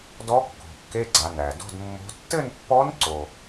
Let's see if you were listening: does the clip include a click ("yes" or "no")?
yes